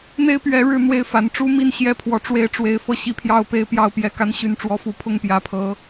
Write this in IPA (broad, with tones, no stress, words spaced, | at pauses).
n̪e˦ɪ̯pɥɛ˨˦ ɻɻ̩˥˨n̪we˥˨ɪ̯fa˨˦n ʈ͡ʂu˦mi˥˨n ɕjɛ˥˨pʰwɔ˨˦ ʈ͡ʂwe˦ɪ̯ʈ͡ʂwe˨˦ɪ̯ fɤ˦ɕi˦pʰjɑ˥˨ʊ̯ pe˥˨ɪ̯pjɑ˥˨ʊ̯pjɛ˥˨ka˦n ɕy˨˦nʈ͡ʂwɔ˨˦fu˨˦ pʰʊ˥˨ŋpjä˨˦pʰɤ˨˦